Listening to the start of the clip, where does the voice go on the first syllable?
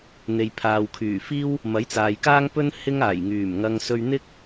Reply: low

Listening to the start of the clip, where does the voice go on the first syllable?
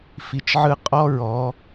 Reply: low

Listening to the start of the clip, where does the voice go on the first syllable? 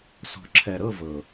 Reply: low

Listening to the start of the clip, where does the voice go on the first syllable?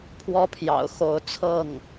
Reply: high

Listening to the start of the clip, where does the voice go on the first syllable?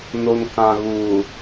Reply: low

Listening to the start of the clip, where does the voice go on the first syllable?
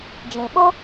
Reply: low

